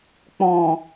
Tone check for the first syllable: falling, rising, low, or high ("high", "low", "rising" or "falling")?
low